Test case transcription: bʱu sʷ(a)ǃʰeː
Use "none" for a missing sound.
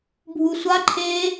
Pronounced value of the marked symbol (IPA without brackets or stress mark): a